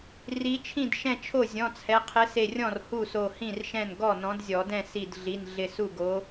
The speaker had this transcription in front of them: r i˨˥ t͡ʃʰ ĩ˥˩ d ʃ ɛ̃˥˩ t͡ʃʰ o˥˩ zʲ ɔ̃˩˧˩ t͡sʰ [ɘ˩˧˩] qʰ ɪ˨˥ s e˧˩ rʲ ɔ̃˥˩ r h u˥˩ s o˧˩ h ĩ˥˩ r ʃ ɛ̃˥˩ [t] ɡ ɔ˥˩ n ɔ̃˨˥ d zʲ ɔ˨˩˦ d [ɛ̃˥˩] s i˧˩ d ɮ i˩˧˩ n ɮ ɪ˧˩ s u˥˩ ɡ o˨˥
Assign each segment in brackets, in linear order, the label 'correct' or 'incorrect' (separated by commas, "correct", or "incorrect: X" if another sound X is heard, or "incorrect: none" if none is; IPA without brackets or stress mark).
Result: incorrect: ɛ˩˧˩, incorrect: n, correct